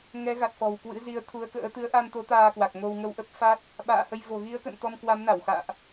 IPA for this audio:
ŋ ɛ˨˦ ɣ a˨˩ t̚ f ɔ̤˨˩ w k w ɨ̰˧˥ z i˨˦ ə̯ t̪ʰ u˨˦ ə̯ k ə̰ː˧˥ t̪ ɨ˨˦ ə̯ ʔ a˧ n t̪ o˨˦ t̪ aː˧ k w a˨˩ k̚ ŋ o˧ w ŋ ə˧ w ʔ ə˦˥ p̚ f a˦˥ t̚ | ɓ a̰ː˧˨ h ə˧ j v o̤˨˩ ɣ i˨˦ ə̯ k ə̰˧˨ n t̪ ɔ˧ m k w a˨˦ m n a˧˩ w x a̰ː˧˨ ʔ

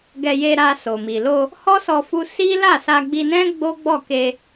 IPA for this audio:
ɡ ɛ˧ j e˧ ɾ a˧ s o˨ m i˨ l o˧ | h ɔ˦ s ɔ˧ f u˧ s i˦ l a˦˨ s a˧ ɡ͡b i˧ n ɛ̃˦ ɡ͡b o˦ ɡ͡b ɔ˦˨ k e˧

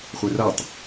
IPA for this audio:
χʷ ɛ r a tˤ

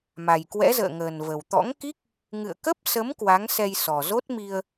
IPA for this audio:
m a˨˩ j k w ɛ̰˧˥ z ə̰ː˧˨ ŋ əː˨˩ n v ə˨˩ w t̪ ɔ̰˧˥ ŋ k i˦˥ k̚ | ŋ ɨ̰˧˨ ə̯ k ə˦˥ p̚ s ə˨˦ m k w a˨˦ ŋ s ɛ˧ j s ɔ˨˩ z o˦˥ t̚ m i˧ ə̯

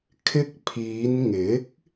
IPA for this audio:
kʰ ɪ˧ k̚ pʰ iː˨˧ n ŋ ɪ˨˥ k̚

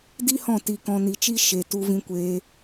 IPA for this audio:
d i˦ h ɔ̃˦˨ t i˧ k ɔ̃˧ n i˧ t͡ʃ i˦ ʃ e˧ t u˦ v ĩ˦ kʷ eː˦

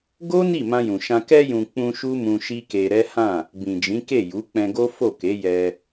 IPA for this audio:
ɡ o˦ n i˦˨ m ã˧ j ũ˨ ʃ ã˧ k ɛ˧ j ũ˨ k͡p ũ˧ ʃ u˦ m ũ˧ ʃ i˦ k e˧ ɾ ɛ˦ h ã˦˨ | b ĩ˨ d͡ʒ ĩ˨˦ k e˦˨ j u˨˦ k͡p ɛ̃˧ ɡ o˦ f o˦˨ k e˨˦ j ɛ˧

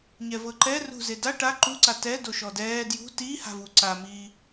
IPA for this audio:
ɲ ɛ v ɤ ǃ ɛ r ṳ z e d a ʈ a ǃ u ǀ a t ɛ d o ʃ ɔ d ɛː d j ṳ t iː h a̤ v u ǀ a m iː

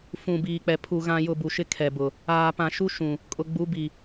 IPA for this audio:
f ũ˨ b iː˨ k͡p ɛ˨ pʰ u˨ ɣ ã˨ j ʊ˨ b u˨ ʃ ɪ˦ kʰ ɛ˨ b ʊ˨ | aː˨ p ã˨ ʃ u˦ ʃ ũ˨ | kʼ ʊ˨ ɡ͡b u˨˦ b i˨

